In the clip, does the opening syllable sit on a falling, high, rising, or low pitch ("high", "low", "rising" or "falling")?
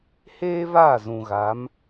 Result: high